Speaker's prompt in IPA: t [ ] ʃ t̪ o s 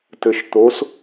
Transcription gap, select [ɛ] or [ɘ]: ɘ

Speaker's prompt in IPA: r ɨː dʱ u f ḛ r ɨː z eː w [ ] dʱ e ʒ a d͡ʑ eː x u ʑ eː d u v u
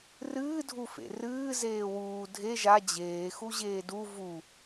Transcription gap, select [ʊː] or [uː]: uː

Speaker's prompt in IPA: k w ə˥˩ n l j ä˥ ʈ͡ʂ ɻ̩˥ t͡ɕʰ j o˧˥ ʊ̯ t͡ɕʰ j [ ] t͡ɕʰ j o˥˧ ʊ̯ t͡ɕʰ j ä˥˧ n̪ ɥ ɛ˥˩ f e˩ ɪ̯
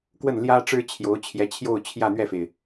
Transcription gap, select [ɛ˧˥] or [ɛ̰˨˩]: ɛ˧˥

